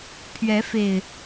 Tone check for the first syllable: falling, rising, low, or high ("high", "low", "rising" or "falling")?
rising